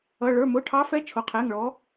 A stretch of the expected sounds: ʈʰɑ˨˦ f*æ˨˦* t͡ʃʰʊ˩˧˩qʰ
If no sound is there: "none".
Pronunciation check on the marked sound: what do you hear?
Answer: ɛ˨˦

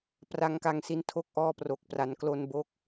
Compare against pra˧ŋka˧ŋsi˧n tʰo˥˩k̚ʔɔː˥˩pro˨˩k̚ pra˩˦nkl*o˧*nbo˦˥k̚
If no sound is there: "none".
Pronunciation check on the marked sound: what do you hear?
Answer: o˧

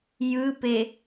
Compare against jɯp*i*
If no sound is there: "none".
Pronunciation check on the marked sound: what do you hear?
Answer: e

